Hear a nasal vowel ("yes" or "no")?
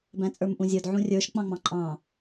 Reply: yes